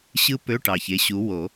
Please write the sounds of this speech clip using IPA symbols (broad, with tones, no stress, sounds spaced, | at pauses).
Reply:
ɕ ɯ˥ p ø˧˥˧ ʈ ɑ˨˩ ç e˨˦ ɕ u˨˦ w o˨˩˦